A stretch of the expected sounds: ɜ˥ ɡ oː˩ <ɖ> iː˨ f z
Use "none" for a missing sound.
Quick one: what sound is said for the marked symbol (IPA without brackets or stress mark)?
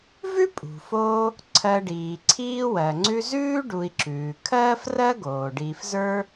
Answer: ɖ